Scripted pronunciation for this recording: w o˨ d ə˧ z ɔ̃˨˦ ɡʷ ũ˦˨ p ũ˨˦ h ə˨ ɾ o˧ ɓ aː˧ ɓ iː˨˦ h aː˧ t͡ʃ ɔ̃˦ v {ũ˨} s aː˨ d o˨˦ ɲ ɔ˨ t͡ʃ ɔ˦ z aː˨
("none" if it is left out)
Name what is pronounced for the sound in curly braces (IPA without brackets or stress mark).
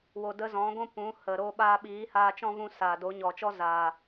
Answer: ũ˦